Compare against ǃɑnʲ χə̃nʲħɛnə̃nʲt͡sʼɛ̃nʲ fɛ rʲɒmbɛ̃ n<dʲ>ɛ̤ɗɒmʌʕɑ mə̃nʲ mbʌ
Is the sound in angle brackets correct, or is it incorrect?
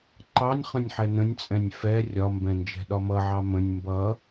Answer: incorrect